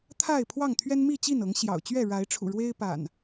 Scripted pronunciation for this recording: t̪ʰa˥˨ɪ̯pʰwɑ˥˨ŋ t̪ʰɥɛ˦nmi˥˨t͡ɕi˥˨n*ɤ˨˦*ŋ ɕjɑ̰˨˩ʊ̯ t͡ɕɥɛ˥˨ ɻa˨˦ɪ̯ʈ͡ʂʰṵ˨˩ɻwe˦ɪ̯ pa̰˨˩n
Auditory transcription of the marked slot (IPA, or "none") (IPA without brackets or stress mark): ɤ˨˦